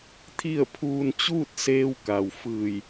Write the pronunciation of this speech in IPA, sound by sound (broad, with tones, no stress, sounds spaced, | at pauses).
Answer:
t̪ʰ i˥˨ ə̯ pʰ uː˧ n t͡ɕ uː˥˨ t̚ s eː˧ w k a˩ w f ɯː˧˩ j